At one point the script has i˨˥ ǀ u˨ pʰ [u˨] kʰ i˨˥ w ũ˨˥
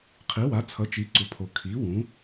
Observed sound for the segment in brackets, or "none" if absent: o˨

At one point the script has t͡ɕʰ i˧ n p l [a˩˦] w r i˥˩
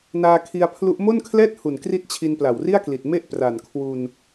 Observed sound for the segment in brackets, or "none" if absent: a˨˩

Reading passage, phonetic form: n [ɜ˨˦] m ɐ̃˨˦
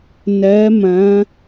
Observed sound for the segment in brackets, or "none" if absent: ɜ˨˦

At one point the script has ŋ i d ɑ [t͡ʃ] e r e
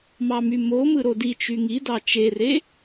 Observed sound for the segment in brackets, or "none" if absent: t͡ʃ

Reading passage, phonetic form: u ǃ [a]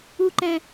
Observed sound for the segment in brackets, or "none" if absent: æ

